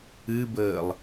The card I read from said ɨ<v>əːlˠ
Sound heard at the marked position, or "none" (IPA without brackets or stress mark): b